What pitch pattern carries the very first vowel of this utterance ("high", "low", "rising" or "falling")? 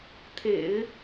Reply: low